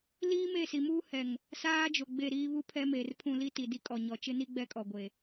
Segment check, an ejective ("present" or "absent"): present